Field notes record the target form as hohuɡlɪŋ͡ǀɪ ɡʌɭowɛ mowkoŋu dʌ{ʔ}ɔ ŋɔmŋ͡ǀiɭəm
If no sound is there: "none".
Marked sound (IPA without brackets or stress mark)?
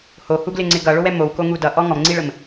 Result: ʔ